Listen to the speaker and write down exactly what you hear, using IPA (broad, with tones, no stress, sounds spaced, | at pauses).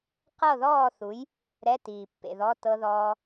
q ɤ˥˨ ð ɔː˥˨ θ u˨˥ j | ɾ ɛ˧˥˧ t iː˨ pː ḛ˨ ð ɔ˧˥˧ t ɤ˦˥ ð ɔː˦˥